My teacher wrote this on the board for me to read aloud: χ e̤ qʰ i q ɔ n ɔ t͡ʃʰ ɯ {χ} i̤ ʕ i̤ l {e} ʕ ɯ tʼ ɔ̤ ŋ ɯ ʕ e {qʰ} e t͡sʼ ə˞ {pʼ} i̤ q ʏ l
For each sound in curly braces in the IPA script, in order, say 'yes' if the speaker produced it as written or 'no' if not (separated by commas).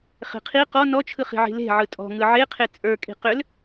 yes, no, yes, no